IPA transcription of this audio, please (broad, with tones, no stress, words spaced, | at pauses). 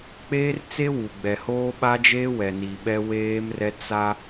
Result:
k͡peː˦rt͡se˦wu˨ ɡ͡bɛ˨hoː˦ɓa˦d͡ʒeː˦ wɛ˨ni˨ɓɛ˦ weː˦mrɛ˦ t͡sa˦